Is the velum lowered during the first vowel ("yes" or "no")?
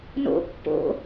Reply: no